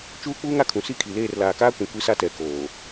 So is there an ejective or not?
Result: no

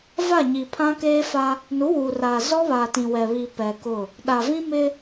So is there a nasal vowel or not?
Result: yes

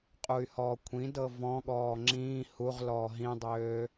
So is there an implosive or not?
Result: yes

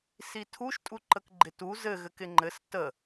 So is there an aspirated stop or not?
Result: yes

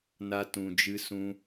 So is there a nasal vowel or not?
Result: yes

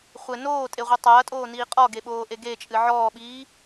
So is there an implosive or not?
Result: yes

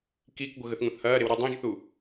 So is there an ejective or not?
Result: no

